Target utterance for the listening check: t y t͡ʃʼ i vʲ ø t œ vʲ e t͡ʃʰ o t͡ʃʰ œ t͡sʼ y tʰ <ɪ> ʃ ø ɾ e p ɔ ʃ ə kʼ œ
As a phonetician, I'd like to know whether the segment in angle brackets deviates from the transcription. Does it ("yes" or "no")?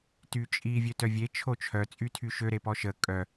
yes